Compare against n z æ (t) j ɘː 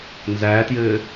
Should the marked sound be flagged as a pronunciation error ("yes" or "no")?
no